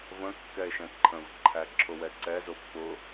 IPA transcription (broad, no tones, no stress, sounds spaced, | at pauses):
v ə̃ kː ɛ e̯ ʃ ɛ̃ ǃʰ ə̃ v ǃʰ æ ǁʰ ʊ w ɛ ǀ ɛ z ʊ pː ʊ